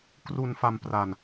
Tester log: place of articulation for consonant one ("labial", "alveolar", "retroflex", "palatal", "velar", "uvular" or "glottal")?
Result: velar